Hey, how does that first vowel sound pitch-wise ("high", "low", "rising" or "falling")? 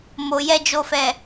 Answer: low